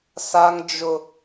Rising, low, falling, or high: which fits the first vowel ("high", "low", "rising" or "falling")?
high